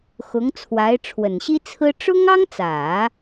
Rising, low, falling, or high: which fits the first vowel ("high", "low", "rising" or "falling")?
rising